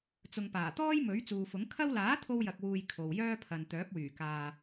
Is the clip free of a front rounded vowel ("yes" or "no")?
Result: no